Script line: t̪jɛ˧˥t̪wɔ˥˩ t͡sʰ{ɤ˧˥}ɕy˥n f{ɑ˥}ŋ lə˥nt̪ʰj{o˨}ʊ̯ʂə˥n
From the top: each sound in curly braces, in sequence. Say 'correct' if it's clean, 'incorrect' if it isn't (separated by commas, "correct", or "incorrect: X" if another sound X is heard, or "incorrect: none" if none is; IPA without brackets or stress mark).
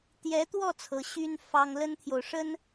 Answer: correct, correct, correct